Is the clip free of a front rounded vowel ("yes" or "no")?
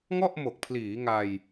yes